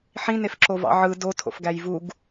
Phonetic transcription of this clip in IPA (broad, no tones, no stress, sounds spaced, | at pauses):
ħ ĩ n e f ǁ o v ɑ̰ ʕ ɯ d o tʰ o̰ f ɡ æ j v u ɡ